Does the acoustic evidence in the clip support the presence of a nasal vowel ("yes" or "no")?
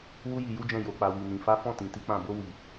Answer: yes